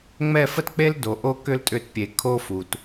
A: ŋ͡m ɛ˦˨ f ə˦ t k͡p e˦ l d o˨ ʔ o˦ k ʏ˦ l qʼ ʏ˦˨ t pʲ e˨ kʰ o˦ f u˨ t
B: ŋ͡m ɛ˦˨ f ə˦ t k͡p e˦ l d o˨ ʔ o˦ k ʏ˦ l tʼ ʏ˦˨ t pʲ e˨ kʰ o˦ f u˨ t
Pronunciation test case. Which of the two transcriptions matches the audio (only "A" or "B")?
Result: B